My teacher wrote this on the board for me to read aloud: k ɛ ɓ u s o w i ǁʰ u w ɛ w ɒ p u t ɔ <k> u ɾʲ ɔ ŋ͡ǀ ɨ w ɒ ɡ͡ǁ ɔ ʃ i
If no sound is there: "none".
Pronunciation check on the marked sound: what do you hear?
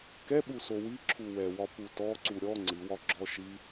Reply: ǀ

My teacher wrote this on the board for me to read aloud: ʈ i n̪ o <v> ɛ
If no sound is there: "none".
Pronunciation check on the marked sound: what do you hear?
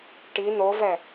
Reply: v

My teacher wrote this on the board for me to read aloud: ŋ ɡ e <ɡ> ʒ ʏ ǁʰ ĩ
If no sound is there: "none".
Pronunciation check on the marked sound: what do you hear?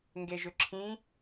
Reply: none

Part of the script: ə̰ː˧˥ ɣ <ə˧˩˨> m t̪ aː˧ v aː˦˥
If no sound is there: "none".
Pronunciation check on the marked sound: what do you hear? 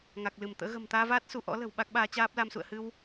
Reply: ə̤˨˩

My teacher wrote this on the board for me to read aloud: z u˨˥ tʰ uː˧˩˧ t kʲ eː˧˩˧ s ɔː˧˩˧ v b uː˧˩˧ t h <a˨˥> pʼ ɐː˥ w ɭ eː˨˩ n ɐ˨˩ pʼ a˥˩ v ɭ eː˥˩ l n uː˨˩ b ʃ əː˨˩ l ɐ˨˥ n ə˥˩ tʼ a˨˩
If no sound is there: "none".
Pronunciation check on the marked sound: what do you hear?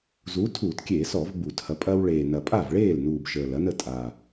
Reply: ɐ˨˥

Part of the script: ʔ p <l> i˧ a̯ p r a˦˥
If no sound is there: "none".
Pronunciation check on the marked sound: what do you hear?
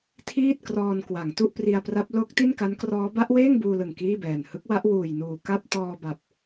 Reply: r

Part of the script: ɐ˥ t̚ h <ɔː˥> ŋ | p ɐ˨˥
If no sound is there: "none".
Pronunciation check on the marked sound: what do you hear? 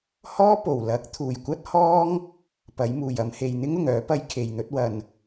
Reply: ɔː˥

